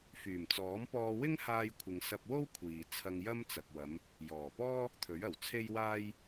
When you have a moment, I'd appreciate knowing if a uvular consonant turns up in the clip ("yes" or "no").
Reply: no